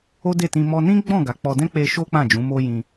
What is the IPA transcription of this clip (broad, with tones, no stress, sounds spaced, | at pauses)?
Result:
o˦ d e˦˨ t ĩ˧ m ɔ˧ n ĩ˦ ɡ͡b ɔ̃˦˨ ɡ a˨˦ k͡p ɔ˧ d ɛ̃˦ k͡p e˧ ʃ o˦ k͡p ã˦˨ d͡ʒ ũ˨˦ m o˦ j ĩ˧